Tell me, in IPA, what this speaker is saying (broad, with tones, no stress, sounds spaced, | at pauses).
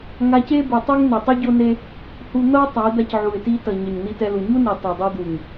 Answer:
ŋ a˧ c e˦ b u˨ tˤ u˦ ŋ n e˨ tˤ ɯ˦ ɟ o˦ n e˦ | h u˧ n̪ ʌ˦ ʊ̯ tˤ a˨˦ ɪ̯ d̪ a˧ c ʕ u˨ ɪ̯ t i˧ t ʌ˨ ɲ ʌ˨ ɲ n̪ i˧ t ɛ˧ l u˨ ɲ u˦ n i˨ tˤ e˨ dˤ ɛ˧ d̪ u˨ ŋ